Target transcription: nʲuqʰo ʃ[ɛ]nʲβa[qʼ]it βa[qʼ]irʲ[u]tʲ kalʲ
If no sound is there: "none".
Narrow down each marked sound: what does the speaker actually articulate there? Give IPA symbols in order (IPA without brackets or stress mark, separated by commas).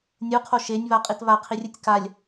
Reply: e, qʼ, qʰ, u